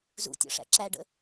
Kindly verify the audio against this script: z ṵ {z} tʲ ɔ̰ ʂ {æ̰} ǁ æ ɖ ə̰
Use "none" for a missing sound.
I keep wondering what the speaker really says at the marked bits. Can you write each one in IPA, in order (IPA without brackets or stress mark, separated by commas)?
none, æ̰